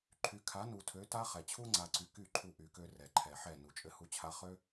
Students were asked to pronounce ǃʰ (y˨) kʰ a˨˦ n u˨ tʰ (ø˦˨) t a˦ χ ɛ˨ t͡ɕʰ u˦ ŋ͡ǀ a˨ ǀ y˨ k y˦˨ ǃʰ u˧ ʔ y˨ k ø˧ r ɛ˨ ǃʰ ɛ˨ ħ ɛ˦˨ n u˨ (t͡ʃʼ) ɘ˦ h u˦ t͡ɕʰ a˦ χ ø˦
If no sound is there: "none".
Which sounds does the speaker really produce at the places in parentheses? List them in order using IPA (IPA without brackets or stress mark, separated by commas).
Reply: y˨, ø˨˦, t͡ʃʼ